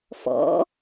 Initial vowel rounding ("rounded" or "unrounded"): rounded